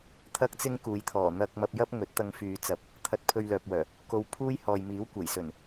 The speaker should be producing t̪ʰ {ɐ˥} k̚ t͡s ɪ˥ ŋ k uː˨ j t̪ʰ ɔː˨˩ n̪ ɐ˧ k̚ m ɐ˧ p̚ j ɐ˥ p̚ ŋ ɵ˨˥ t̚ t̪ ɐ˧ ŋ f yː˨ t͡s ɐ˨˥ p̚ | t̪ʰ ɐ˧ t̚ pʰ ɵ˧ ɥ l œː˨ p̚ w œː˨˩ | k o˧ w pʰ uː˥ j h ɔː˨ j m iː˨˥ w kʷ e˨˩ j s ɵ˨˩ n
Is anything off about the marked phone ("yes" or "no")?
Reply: no